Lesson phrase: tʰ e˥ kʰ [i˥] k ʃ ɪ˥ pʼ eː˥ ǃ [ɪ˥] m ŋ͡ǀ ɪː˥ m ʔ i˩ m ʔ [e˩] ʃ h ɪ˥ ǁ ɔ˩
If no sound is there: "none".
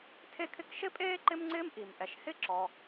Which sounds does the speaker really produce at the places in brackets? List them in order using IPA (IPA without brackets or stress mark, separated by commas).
ɪ˥, ɪ˥, ɛ˩